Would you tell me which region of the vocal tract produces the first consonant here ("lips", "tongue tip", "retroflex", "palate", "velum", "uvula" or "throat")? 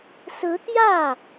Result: tongue tip